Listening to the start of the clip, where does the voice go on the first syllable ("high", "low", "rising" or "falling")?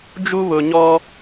high